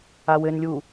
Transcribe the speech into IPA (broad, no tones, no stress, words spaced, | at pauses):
awɘnlʲu